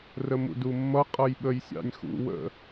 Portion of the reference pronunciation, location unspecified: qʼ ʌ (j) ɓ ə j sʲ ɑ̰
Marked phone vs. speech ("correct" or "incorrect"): correct